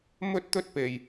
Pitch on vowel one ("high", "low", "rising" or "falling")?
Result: high